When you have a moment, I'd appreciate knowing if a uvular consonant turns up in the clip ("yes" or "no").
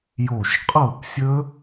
yes